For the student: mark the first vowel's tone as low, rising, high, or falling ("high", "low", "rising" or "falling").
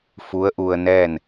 rising